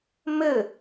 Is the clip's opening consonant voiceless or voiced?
voiced